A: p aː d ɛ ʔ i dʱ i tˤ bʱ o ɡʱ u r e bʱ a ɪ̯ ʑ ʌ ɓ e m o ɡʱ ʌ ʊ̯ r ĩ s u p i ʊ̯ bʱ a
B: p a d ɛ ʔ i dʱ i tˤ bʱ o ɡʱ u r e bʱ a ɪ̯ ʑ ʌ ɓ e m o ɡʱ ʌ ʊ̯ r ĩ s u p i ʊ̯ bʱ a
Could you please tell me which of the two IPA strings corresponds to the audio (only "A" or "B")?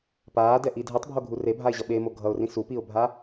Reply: A